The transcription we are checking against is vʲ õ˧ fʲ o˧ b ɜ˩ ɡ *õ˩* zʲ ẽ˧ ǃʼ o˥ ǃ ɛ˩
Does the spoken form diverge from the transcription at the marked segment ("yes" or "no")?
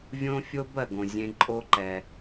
no